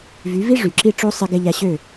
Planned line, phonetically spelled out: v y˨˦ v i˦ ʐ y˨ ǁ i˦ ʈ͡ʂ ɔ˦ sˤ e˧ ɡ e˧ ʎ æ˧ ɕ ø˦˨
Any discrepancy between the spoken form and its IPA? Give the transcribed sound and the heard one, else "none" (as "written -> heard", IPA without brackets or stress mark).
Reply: ɔ˦ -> o˦